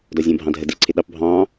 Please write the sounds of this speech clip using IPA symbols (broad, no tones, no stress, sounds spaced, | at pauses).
d ɒ zʲ ə̃ː bʱ ɑ̃ dʱ ə d ɪː ǀʰ ɪ ɗ ɑ p bʱ ɑ̃ː